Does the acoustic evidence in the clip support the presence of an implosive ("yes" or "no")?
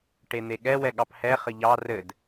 yes